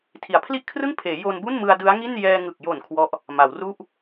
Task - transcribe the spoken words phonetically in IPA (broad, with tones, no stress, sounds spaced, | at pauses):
tʰ i˩˦ a̯ pʰ l i˥˩ ʔ kʰ r ɯ˥˩ ŋ pʰ eː˩˦ j o˧ n b u˥˩ n m ɯ˧ a̯ d ɯ˦˥ a̯ ŋ i˥˩ n j ɛː˧ ŋ ɯ˨˩ k̚ j o˨˩ n kʰ w ɔ˦˥ ʔ | m a˩˦ w r u˥˩ ʔ